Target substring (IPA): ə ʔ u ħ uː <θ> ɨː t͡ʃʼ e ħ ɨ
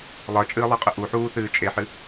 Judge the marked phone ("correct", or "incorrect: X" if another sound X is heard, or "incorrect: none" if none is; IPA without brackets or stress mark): correct